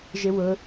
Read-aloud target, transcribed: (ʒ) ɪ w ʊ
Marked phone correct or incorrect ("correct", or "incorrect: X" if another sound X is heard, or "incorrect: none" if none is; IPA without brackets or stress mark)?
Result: correct